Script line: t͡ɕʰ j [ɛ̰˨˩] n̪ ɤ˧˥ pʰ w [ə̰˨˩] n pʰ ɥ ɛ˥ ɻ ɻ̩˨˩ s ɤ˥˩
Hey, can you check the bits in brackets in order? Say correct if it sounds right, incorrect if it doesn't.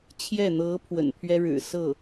incorrect: ɛ˥˩, correct

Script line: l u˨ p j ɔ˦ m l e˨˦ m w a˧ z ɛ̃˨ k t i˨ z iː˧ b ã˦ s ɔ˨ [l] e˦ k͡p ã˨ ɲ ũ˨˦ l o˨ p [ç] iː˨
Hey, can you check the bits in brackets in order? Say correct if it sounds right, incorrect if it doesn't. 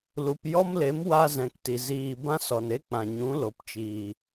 incorrect: n, incorrect: t͡ʃ

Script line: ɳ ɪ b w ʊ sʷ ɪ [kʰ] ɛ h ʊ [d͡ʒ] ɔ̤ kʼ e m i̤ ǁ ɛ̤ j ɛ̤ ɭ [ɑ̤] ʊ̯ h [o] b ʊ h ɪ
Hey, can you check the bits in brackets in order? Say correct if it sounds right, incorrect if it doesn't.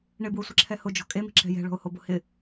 incorrect: ǁʰ, correct, incorrect: ɔ̤, correct

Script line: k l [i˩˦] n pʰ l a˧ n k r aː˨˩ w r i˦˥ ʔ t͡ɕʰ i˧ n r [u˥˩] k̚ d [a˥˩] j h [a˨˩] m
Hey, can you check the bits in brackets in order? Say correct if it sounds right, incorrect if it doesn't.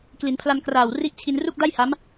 correct, correct, correct, incorrect: a˦˥

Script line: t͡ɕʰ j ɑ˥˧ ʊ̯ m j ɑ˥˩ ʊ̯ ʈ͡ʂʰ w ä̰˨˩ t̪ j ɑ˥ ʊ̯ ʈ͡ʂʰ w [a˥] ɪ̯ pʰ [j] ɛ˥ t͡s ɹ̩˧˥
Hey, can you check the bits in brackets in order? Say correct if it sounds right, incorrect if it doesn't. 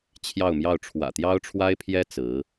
correct, correct

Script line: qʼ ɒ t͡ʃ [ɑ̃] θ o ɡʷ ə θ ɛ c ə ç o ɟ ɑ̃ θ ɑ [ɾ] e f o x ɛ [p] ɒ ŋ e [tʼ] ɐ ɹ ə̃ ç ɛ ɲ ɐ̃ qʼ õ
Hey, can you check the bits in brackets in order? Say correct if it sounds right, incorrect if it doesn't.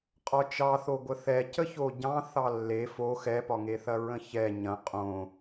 incorrect: ɑ, incorrect: lː, correct, incorrect: θ

